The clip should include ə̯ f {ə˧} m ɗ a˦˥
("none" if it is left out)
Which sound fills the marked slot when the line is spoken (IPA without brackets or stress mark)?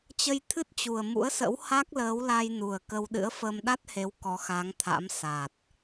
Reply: ə˧